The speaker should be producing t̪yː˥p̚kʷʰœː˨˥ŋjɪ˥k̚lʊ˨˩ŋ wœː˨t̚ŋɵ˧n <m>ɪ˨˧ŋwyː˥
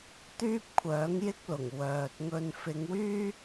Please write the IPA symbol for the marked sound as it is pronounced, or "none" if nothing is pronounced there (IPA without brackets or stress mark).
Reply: f